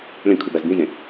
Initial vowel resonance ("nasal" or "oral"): nasal